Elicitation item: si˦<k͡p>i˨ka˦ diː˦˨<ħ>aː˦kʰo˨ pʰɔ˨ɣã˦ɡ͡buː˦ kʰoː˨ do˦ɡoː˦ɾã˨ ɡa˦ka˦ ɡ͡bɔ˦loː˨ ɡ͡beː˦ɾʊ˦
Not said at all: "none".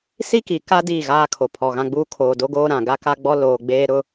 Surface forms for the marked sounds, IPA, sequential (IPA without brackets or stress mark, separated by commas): k, ɣ